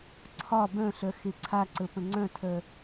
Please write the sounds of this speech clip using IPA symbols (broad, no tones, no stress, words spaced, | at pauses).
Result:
ǀʰɒ bœ̃ɬœ xeǀʰaǀə pə̃ŋ͡ǀœ̃tʰœ